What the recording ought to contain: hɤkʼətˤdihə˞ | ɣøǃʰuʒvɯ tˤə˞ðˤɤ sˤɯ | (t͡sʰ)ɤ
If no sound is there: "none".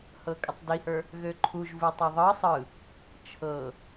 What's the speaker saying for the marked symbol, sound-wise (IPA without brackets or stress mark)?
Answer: t͡ʃʰ